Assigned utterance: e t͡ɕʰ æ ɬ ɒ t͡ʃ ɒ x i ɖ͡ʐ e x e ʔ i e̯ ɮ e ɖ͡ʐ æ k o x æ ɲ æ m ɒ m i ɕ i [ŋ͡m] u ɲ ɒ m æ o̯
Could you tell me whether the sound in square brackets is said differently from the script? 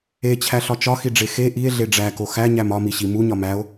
yes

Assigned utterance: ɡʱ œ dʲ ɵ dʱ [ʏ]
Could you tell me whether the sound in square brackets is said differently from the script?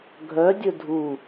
yes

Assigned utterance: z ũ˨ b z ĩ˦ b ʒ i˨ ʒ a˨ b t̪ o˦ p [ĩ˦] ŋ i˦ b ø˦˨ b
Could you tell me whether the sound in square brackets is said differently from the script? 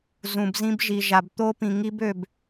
yes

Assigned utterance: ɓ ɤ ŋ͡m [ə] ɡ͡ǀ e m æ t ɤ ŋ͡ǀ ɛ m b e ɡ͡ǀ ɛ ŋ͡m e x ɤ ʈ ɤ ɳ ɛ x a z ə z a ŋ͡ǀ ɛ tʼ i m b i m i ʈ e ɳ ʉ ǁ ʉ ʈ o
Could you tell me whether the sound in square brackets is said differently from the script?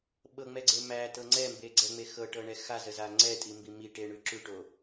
yes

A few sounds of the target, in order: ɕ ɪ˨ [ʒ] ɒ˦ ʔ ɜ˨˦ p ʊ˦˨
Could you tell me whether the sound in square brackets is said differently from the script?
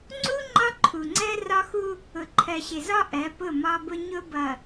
yes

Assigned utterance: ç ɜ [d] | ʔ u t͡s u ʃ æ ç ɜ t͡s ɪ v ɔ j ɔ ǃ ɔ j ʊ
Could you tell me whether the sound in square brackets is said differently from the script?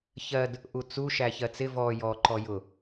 no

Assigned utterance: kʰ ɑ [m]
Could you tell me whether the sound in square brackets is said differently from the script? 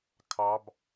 yes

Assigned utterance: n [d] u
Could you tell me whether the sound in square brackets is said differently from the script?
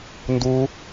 no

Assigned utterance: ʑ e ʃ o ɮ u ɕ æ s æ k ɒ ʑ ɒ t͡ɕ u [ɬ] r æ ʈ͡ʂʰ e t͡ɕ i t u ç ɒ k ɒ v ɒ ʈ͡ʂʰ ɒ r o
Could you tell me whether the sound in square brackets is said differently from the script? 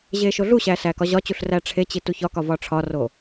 no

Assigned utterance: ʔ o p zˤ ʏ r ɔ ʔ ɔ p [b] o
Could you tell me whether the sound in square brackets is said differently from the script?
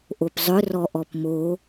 yes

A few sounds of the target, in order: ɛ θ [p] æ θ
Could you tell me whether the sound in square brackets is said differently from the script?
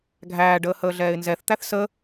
yes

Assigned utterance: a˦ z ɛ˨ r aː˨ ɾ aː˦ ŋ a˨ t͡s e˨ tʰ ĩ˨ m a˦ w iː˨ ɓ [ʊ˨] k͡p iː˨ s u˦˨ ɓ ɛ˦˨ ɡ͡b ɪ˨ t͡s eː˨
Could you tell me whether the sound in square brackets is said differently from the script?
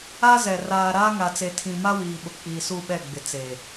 no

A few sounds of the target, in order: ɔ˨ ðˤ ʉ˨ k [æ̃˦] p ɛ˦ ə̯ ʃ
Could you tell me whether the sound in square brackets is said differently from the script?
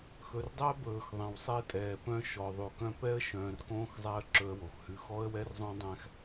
yes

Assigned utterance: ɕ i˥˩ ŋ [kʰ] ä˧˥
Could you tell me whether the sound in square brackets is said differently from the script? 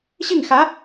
yes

